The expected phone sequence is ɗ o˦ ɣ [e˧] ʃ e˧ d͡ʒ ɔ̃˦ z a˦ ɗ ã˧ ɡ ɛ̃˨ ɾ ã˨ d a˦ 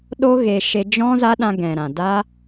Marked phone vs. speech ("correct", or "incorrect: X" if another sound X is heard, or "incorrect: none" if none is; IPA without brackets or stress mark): correct